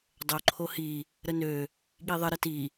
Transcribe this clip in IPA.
dˤ o ǃʰ o h i | ɾ ə n ø | ɠ i ðˤ ə ɾ ə t i

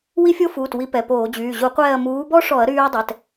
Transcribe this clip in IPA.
w i˦˥ fʲ o˦˥ f uː˩˧˩ t w i˧˩˧ p ɛ˩˧˩ p oː˧˩˧ d͡ʑ yː˩˧˩ ʑ u˧˩˧ qʷ ɛː˦˨ ɐ̯ m uː˨˦ b ɔ˦˥ ʂ ɔ˧˩˧ ɐ̯ ɾ yː˦˥ ɐ̯ dˤ ɛ˩˧˩ t

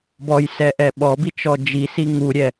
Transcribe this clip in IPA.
b ɔ j s ɛ ʔ ɛ ɓ ɔ b i t͡ʃ ɔ d͡ʒ i s i ŋ u ɾʲ ɛ

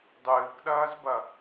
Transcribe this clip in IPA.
dˤ ɨː k ɗ ɐː z b ɐ

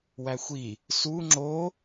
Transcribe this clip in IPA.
w æ xʷ i | s u ŋ͡ǁ o

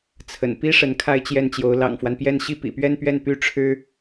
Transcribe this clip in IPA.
t͡sʰ ə̰˨˩ n p i˥ ʂ ə˧˥ n kʰ a˥˧ ɪ̯ t͡ɕ j ɛ˥˩ n t͡ɕ j o˧˥ ʊ̯ l ɑ̰˨˩ ŋ f w a˦ n p j ɛ˥˧ n ɕ i˥˩ p ḭ˨˩ p ɥ ɛ˥˧ n p ɥ ɛ˥˩ n p y˥ ʈ͡ʂʰ ɻ̩˥

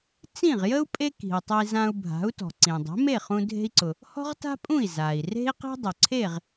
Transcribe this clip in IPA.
t͡s ĩ˥˩ ʁ j ə˥ u̯ pʼ e˥ k i̤˩ u̯ tˤ ʊ˧ i̯ z ã˧ u̯ bʱ a̤˩˥ u̯ t ɔ̤˩ ǀ ĩ˩ dˤ e̤˩˥ m e˥˩ χ ũ˧ dʱ e̤˧ i̯ ǀ ʊ˩ | h ɔ̤˥ ʁ t a̤˥ pʼ ũ˥˩ i̯ z a˩ i̯ r e̤˥ i̯ q i̤˥ dˤ ʊ˩ ǀʰ e˥˩ ʁ

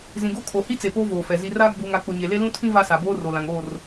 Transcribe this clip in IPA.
z ĩ˨ ɡ o˦ kʰ o˨ h i˦ t͡s e˨ p oː˦ v oː˨ f ɛ˨ z i˨ r aː˦ ɡ͡b uː˨ ŋ a˨ k͡p ʊ˨ ɲ e˨ l e˦ l ũ˦ tʰ ĩ˦ v a˦ s a˨ b oː˦ r o˨ l ã˨ ŋ oː˦˨ r

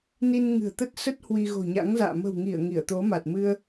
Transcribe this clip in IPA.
n i˧ n ŋ ɨ̤˨˩ ə̯ t̪ ə˦˥ t̚ s ə˦˥ t̚ h w i˧ ɣ o̤˨˩ ɲ a̰˧˥ ŋ z a̰ː˧˨ m ə̤˨˩ w ŋ i˧˩ ə̯ ŋ i˧˩ ə̯ t̪ o˨˦ m a˨˩ t̚ m ɨ˧ ə̯

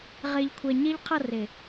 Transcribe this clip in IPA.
ʁ e˨ ʎ kʷʰ ɛ˨ ɲ e˦ ʎ qʰ ʌ˦˨ r e˨

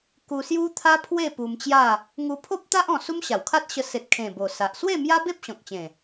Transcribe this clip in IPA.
k u˧ s j u˦ t̪ʰ a˦ pʰ w e˥˧ p u˧ m t͡ɕ j a˥˧ | ŋ u˧ pʰ o˦ p̚ t̪ a˦ ʔ ɔ̃˧ s u˦ m ɕ a˨˩ w kʰ a˦ t̚ ɕ ə˧ s e˨ t̚ kʰ ẽ˨˩ b o˨˩ s a˨ ʔ s w e˥˧ m j a˦ b e˦ p̚ ɕ ɔ̃˨ k̚ t͡ɕ ẽ˨˩

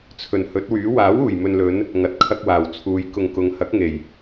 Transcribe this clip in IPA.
t͡sʰ ɵ˨˩ n h ɵ˨˥ t̚ w yː˨˥ w aː˨˥ w uː˨˩ j m ɵ˨ n l ɵ˨˧ n | ŋ ɐ˨ t̚ kʰ ɐ˧ k̚ w aː˨˩ w t͡sʰ uː˨˧ j k ʊ˨ ŋ k ʊ˨˧ ŋ h ɐ˨˥ k̚ ŋ e˨˩ j

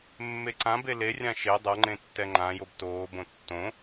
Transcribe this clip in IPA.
mː e ǀ ã b e l e rʲ ã ʃ e dˤ ɤ ŋ͡ǃ ẽ tː ɛ ŋ͡ǃ ã j o b t oː b õ tː õ

